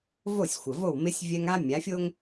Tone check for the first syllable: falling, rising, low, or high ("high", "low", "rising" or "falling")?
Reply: falling